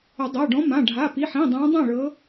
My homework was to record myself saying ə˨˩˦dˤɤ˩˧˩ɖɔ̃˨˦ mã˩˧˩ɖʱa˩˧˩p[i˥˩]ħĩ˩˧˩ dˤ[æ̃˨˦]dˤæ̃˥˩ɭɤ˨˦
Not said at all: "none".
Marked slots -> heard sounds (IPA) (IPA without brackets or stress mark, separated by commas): i˩˧˩, æ̃˨˦